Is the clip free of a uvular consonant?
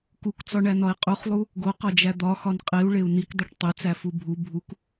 no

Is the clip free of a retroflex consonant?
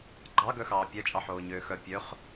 yes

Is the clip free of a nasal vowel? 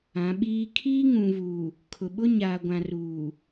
no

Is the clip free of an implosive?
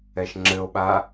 no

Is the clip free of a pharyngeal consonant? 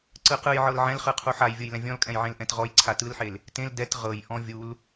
no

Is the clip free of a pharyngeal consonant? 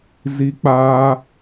yes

